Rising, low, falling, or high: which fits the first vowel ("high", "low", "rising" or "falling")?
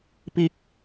high